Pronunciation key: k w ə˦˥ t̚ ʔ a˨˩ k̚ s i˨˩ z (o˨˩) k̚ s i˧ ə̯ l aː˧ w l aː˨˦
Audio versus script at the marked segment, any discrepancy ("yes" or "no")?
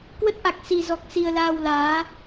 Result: yes